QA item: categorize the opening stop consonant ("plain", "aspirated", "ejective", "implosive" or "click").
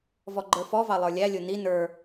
click